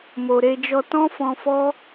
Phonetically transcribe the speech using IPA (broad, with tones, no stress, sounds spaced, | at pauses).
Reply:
m o˨ ɾ e˧ d͡ʒ ɔ˧ t ɔ̃˦ f ɔ̃˧ f ɔ˦